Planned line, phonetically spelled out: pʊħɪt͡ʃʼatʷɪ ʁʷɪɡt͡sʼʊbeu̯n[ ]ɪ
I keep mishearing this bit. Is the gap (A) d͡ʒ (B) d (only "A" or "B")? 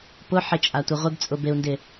B